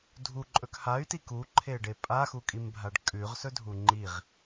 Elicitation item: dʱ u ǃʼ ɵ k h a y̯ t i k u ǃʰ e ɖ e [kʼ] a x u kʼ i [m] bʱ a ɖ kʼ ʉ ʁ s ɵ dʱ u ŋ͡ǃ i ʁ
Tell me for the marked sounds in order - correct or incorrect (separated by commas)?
incorrect, correct